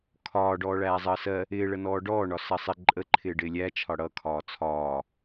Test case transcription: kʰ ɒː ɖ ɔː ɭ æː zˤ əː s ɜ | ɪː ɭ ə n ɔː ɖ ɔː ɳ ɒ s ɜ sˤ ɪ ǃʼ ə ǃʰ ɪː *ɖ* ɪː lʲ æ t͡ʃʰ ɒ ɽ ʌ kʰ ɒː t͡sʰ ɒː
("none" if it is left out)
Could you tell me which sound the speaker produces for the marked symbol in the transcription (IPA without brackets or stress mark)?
ɖ